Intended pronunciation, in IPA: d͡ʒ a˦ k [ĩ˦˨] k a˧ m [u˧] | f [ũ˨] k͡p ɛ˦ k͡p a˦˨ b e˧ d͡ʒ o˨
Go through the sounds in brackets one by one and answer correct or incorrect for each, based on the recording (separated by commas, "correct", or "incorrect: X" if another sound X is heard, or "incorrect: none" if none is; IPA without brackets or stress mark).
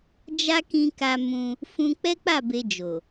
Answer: incorrect: ĩ˧, incorrect: ũ˧, incorrect: ũ˧